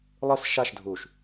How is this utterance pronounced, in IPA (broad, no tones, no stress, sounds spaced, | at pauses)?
lˠ ɯ s ʃ a ʃ dʱ u ʃ